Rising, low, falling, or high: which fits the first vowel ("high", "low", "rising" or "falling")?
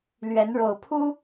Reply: rising